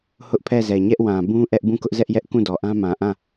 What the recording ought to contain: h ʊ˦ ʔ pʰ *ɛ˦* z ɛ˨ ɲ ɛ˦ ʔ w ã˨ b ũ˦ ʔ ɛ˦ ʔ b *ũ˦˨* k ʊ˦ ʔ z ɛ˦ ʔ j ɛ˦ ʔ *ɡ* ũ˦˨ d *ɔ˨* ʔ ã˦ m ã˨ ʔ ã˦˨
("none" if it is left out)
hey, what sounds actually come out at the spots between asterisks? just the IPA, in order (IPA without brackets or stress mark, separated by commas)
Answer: ɛ˦˨, ũ˦˨, k, ɔ˨